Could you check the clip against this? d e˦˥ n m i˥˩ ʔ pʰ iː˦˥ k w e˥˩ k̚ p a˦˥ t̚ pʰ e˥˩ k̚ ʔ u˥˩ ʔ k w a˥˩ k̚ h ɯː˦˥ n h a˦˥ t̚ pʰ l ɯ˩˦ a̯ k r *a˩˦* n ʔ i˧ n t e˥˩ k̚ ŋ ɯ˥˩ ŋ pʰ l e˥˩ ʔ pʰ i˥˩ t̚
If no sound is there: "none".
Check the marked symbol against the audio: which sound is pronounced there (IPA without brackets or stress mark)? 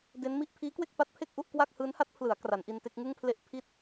a˩˦